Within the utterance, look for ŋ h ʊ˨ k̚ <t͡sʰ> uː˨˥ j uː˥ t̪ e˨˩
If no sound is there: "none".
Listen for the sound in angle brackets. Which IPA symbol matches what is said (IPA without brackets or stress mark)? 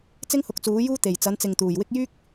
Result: t͡s